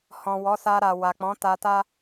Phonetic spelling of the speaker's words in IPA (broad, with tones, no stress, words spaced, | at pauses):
hɔ̃˨wɔ˨˦sa˧ ɾa˨wa˨k͡pɔ̃˨˦ ta˧ta˦